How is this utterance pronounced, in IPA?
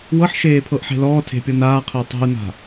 w ɤ ħ ʃ eː pʰ ɤ ʔ ħ e̤ l ɔː tʰ e̤ pʲ ɤ n aː qʰ e tˤ e̤ u̯ n a̤

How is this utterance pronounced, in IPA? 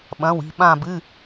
ɓ ɐ̃˩˧˩ w i̤˧˩ ɓ ã˧˩ b ɨ˩˧˩

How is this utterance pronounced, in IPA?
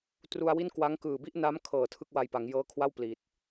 t r u˧ a̯ w i˥˩ n k w a˦˥ ŋ k ɯː˨˩ b i˥˩ ʔ n a˦˥ m kʰ ɤː˨˩ tʰ ɯ˥˩ k̚ w a˧ j p a˩˦ ŋ j ɤː˦˥ kʰ w a˥˩ w p l i˨˩ t̚

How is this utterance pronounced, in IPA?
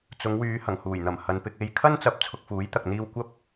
t͡s ʊ˨˧ ŋ w yː˨˧ h ɐ˨˩ ŋ h uː˨˩ j n̪ ɐ˨˩ m h ɐ˨ n p ɪ˧ k̚ e˨˧ j kʰ ɐ˥ n t͡s ɐ˨˥ p̚ t͡sʰ ʊ˧ k̚ f uː˨˥ j t̪ ɐ˨ k̚ n̪ iː˧ w kʷ ɐ˥ p̚

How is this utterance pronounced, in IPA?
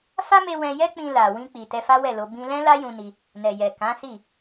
f a˦ m e˧ w ɛ̃˧ j ɛ˦ k͡p ĩ˧ l a˨ w ĩ˧ k͡p i˨ t ɛ˧ f a˦ w ɛ˦˨ l o˧ b ĩ˧ l ɛ̃˦ l a˦ j ũ˧ n i˧ | n ɛ˨ j ɛ˨ k ã˨˦ s i˦˨

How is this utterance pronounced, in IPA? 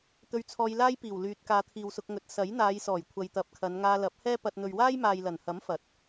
t̪ ɵ˧ ɥ t͡sʰ ɔː˧ j l aː˥ j p iː˨˩ w l yː˨ t̚ k aː˨˧ t̪ʰ iː˨ w s ʊ˧ k̚ ŋ ɵ˨˥ t̚ s ɐ˨˥ j n̪ aː˨˧ j s ɔː˨˩ j kʷʰ ɐ˨ j t̪ ɐ˨˥ p̚ kʰ ɐ˨˧ n ŋ aː˧ l ɐ˨˥ p̚ h ɛː˥ p ɐ˧ t̚ n̪ ɵ˨ ɥ w aː˥ j m aː˨ j l ɐ˨˩ n h ɐ˨˥ m f ɐ˨˥ t̚

